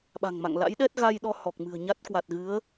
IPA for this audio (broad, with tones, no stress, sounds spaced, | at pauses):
ɓ a̤˨˩ ŋ m a̰˧˨ ŋ l a̰˧˥ j ɗ ɛ˦˥ t̚ ɣ a˧ j ɗ ɔ˧ h ɔ˨˩ k̚ m ɨ̤˨˩ ə̯ ɲ a˦˥ t̚ k w a˨˩ t̚ ɣ ɨ˨˦ ə̯